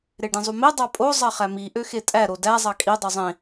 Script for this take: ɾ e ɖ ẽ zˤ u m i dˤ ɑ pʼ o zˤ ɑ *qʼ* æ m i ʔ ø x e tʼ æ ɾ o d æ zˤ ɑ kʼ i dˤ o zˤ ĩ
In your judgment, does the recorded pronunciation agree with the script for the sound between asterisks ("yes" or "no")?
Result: no